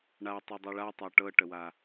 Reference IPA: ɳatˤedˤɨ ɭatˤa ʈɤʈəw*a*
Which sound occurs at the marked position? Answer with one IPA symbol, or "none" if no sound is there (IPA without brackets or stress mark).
a